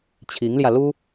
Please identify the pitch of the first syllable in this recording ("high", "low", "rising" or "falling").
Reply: rising